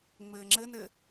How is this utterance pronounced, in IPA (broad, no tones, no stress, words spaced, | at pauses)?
ŋ͡mɘːŋ͡ǁɘnɘ